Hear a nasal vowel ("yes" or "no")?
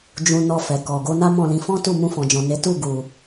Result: yes